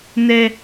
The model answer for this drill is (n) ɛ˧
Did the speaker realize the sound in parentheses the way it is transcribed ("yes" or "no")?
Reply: yes